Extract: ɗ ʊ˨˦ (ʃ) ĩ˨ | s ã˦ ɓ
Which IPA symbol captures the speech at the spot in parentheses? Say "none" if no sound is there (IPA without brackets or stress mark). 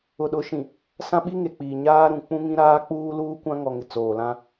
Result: ʃ